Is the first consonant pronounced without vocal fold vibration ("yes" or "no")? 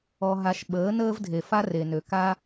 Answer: no